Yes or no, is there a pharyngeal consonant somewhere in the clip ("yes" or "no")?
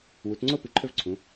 no